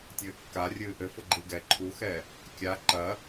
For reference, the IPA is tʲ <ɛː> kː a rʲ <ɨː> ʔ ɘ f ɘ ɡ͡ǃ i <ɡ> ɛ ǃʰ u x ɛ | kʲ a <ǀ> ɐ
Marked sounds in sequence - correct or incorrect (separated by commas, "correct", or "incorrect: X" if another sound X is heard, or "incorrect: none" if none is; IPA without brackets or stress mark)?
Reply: incorrect: ɘː, correct, correct, incorrect: ǃ